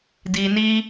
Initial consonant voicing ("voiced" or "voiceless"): voiced